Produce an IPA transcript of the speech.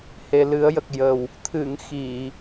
h e˨˩ l ɨ˨˩˦ ə̯ j ə˨˩ k̚ j ə˨˩ w | t̪ʰ ɨ˨˩˨ ŋ x i˨˩˨

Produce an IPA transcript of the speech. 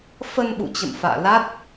f ə˧ n ɓ ṵ˧˨ t͡ɕ ə̰˧˨ m f a̰ː˧˨ l a˦˥ t̚

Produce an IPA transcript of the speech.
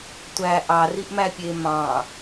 tʷ æ ʔ ɑ r i ʔ m æ pʲ e m ɑ̃

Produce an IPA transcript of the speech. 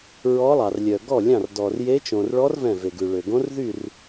ɹ ɔ˦˥ lˠ ɑ˧ r lʲ œ˧ ɡ ɔ˥˧ lʲ ɑ̃˥˧ r d ɔ˧ r j e˦˥ t͡ʃ õ˧ r ɭ ɔ˦˥ r v ɛ̃˥˧ v e˧ ɡ ʉ˧ ɭ ø˧ ɡ õ˦˥ r ð y˥˧ r

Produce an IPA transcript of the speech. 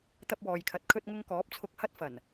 t̪ ɐ˧ p̚ w ɔː˨ j kʰ ɐ˨ t̚ kʰ ɵ˧ t̚ ŋ ʊ˧ ŋ k ɔː˨˥ p̚ t͡sʰ ʊ˨ k̚ h ɐ˧ t̚ f ɐ˨˩ n

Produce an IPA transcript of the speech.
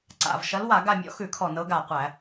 ǀ a̰˨˩ v ʃ ɐ˨˦ l w a˧˩˧ ɡ a˦˨ mʲ ɔ̰˦ x ʉ˧˩˧ kʰ ɔ˨˩ n ɤ˨˦ ɡ a˨˩ qʷ æ˧˩˧

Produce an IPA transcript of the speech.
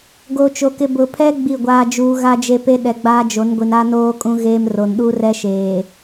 ɡ o˨ t͡ʃ o˨ k ɪ˨ b ʊ˨ pʰ ɛ˦ ɡ͡b i˦˨ ɡʷ aː˦ d͡ʒ uː˦ ɣ a˦ d͡ʒ e˦ p e˦ ɗ ɛ˨ ɡ͡b aː˦ d͡ʒ o˨˦ n ɡʷ i˨ n a˦ n oː˦ kʼ ũ˦ ɣ eː˦ m r o˨ n ɗ uː˦ r ɛ˦ ʃ eː˨

